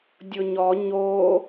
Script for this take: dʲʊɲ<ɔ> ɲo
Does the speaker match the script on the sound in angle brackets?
yes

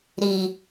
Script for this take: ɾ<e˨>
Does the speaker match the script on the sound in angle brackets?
no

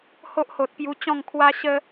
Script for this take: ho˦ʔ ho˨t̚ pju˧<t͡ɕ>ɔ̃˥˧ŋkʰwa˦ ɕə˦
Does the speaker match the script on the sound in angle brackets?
yes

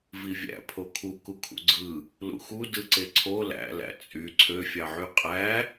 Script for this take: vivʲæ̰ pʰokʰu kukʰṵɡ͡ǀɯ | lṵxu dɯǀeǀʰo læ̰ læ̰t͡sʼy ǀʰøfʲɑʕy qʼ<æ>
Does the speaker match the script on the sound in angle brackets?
yes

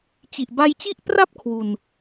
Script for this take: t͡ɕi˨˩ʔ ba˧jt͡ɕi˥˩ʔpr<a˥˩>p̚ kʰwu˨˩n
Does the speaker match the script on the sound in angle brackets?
yes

